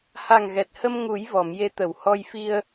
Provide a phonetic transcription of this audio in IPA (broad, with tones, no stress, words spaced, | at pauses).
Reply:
ha˨˩ŋɣɛ˨˩t̚hə˧m ŋu˨˩˦j vɔ˨˩˨mje˧˥t̪ə˨˩˨whɔ˧j fi˧ə̯